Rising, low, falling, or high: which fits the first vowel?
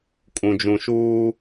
low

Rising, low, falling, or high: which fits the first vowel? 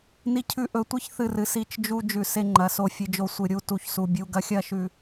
high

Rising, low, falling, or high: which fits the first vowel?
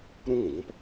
high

